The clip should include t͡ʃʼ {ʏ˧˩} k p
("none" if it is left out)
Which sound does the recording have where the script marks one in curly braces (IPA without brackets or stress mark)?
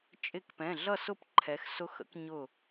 ɪ˧˩